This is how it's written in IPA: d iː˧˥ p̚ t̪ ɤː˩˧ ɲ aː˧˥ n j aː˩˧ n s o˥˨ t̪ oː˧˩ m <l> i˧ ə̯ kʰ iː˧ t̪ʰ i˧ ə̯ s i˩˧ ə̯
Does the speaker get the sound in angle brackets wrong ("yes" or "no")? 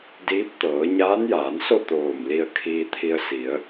no